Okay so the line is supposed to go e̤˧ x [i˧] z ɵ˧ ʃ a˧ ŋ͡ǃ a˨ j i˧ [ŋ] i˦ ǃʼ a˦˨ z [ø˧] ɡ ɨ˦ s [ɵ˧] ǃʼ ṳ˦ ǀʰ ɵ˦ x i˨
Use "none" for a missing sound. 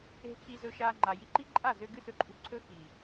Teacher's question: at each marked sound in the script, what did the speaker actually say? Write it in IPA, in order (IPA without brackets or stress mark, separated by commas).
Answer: i˧, ǃ, ø˧, ɵ˧